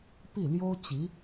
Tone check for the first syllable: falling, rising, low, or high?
falling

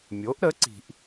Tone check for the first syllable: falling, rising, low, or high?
rising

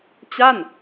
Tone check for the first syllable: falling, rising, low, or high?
falling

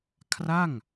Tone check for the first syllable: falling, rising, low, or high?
falling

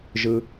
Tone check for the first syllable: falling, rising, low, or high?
low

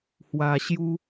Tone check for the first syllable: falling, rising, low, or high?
low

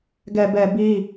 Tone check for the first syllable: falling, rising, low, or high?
low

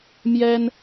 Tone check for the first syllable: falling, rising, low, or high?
high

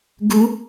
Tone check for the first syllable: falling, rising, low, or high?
high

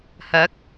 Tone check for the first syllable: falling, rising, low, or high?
rising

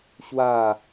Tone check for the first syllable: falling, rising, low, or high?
falling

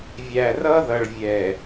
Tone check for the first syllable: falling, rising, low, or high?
low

